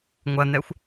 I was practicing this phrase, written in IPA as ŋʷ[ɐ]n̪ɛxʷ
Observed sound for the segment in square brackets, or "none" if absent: ɐ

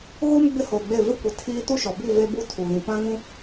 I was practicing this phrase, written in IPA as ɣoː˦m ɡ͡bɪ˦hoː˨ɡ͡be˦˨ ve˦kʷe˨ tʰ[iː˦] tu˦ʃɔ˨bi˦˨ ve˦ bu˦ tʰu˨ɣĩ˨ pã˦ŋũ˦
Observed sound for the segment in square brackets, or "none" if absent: iː˦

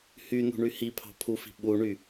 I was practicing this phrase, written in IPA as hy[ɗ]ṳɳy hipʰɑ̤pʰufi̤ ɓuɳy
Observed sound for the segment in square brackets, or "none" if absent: n̪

